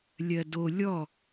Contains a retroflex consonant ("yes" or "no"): no